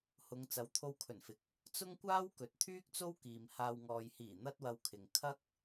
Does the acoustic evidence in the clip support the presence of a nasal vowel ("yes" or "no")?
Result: no